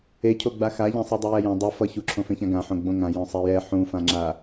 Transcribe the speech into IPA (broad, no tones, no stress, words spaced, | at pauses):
ecʰo ɡ͡baxaʎɛ̃ sˤudˤujɛjɛ̃ dˤɯ fʌ çuǁʰõfẽçã ɡãħõ ɡ͡bõŋã jõsˤɛjɛ ħũfãŋ͡ǁa